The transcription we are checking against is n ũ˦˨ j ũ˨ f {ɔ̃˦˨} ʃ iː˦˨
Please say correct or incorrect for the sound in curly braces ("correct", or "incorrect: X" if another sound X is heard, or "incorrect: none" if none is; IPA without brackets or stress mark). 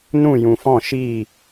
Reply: correct